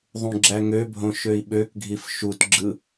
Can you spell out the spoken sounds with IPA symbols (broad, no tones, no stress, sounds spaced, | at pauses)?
ðˤ ũ ɡ͡ǁ æ ŋ ø bʱ õ ʃ ø i̯ ɓ ø k ɡʱ i f ʃ u t ɡ͡ǁ ɯ